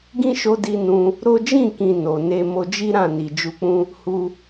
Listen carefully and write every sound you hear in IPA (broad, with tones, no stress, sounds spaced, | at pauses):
ɡ ĩ˦ ʃ o˧ d i˧ n ũ˧ | ɾ o˦ d͡ʒ ĩ˦˨ k ĩ˨ n o˨ n e˧ m o˧ d͡ʒ i˦ ɾ ã˦˨ n i˨ d͡ʒ u˧ k͡p ũ˦ | h u˧